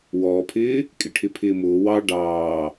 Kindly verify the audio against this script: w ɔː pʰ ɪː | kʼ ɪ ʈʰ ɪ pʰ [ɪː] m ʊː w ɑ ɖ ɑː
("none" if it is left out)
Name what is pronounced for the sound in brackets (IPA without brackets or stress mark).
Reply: ɪː